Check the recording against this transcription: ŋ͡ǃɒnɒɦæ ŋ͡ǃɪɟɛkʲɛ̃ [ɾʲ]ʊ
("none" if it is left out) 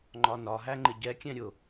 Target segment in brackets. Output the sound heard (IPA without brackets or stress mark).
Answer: ɾʲ